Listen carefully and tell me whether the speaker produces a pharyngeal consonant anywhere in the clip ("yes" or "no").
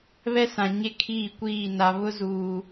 no